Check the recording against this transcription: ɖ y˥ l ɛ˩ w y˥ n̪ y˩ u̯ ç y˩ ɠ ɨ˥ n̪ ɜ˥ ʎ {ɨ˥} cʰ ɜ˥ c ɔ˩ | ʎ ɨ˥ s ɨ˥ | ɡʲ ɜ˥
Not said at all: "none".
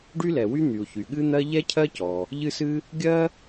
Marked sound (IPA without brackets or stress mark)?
ɛ˥